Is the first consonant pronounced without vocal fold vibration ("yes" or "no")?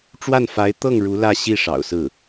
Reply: yes